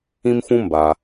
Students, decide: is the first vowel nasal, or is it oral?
nasal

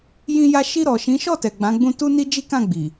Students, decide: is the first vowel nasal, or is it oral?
nasal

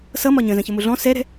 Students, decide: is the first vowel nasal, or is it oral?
oral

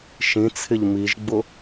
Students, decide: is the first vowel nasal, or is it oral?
nasal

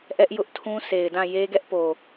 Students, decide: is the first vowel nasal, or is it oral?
oral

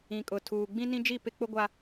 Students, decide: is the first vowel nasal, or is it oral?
nasal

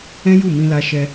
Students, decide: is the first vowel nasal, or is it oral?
nasal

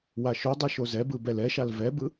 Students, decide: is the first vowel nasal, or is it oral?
oral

